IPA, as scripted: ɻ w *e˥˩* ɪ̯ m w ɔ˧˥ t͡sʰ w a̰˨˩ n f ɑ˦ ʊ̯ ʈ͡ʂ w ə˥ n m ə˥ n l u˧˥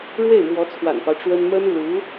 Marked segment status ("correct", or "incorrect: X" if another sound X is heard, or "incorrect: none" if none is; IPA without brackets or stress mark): correct